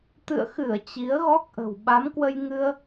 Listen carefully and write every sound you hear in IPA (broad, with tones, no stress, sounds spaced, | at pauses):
t̪ ɨ̰˧˨ ə̯ x ɨ˧˩ ə̯ t͡ɕ i˨˦ ə̯ ɣ ɔ˦˥ k̚ ʔ ə̤˨˩ w ɓ a˨˦ m k w ə˧ j ŋ ɨ˧ ə̯